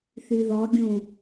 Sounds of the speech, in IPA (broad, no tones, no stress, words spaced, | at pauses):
θyðɔɡʲũ